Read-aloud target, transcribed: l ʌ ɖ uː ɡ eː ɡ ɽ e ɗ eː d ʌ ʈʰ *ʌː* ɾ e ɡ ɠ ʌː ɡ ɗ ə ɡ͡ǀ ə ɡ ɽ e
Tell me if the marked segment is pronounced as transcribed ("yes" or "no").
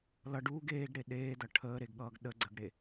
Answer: no